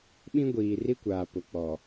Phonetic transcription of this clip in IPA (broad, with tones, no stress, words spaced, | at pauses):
ɓĩ˦ɡʷiː˨ri˦kʷaː˨ pʊ˨k͡pɔ˨